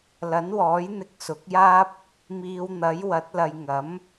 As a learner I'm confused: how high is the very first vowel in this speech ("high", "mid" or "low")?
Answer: low